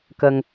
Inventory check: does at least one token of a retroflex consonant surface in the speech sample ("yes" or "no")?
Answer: no